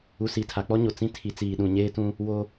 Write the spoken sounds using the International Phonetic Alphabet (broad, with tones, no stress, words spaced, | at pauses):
u˨ si˨tʰa˨k͡pɔ˦ɲo˨ t͡sĩ˦tʰi˨˦t͡siː˨ ɗũ˨ɲeː˦tũ˦ | wo˦